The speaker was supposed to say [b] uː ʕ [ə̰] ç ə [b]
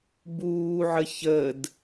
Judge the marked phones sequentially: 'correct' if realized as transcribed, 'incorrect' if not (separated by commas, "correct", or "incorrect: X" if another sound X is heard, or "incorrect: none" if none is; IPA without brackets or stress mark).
correct, incorrect: ə, incorrect: d